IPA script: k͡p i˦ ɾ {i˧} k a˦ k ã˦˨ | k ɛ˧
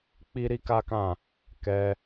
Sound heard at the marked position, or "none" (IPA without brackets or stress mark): i˦